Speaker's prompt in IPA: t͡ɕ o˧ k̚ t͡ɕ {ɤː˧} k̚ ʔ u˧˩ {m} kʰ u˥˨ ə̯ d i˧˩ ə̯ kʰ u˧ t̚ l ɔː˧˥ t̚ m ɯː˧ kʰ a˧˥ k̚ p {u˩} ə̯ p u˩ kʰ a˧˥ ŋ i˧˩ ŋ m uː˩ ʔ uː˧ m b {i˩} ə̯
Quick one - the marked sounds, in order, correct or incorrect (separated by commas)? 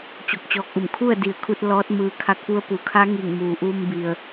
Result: incorrect, correct, incorrect, correct